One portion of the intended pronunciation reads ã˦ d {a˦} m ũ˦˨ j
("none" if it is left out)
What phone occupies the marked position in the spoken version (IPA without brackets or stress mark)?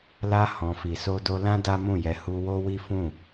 a˦